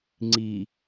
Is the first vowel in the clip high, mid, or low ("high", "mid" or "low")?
high